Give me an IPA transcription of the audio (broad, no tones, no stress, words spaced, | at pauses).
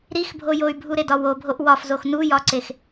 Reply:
ɾixbʱo joy̯bʱuɾedɒ wobʱoʔ wɒfzox nujɒǀex